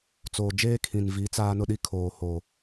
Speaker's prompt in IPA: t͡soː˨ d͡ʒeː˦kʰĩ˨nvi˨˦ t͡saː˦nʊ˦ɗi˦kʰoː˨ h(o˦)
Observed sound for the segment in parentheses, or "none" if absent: o˨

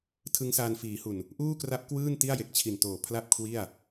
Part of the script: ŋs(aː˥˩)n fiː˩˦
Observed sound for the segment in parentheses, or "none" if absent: aː˧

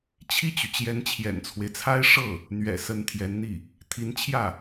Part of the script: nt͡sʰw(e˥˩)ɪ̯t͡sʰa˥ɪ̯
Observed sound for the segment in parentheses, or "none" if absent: e˦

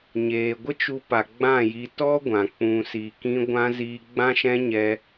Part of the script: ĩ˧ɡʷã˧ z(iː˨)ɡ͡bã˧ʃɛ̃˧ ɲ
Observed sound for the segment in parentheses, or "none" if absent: iː˨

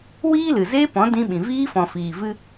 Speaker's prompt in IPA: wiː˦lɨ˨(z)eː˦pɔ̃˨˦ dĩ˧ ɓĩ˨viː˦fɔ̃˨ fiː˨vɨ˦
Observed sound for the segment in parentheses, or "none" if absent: z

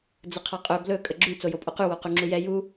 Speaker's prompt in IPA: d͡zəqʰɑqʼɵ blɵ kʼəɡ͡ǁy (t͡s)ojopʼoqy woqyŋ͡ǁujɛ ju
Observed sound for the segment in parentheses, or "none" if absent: t͡s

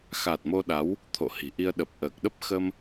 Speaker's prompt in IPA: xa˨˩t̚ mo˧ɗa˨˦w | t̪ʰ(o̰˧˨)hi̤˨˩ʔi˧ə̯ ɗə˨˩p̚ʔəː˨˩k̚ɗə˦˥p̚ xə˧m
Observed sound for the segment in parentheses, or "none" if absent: o̰˧˨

